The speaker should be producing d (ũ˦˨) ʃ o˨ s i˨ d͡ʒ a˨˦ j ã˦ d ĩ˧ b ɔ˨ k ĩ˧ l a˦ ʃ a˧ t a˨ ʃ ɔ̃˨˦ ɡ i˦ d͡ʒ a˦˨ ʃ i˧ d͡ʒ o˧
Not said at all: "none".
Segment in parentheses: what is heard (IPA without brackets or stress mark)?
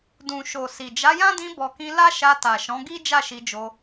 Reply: ũ˨